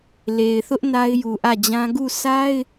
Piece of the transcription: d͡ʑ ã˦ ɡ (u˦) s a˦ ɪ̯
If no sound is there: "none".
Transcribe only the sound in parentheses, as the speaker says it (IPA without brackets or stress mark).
u˦˨